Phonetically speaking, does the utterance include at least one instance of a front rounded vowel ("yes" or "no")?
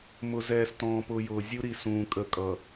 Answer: no